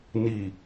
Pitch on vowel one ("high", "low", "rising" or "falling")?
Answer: low